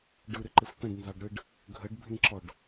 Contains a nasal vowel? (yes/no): yes